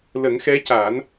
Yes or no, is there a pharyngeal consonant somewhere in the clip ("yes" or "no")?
no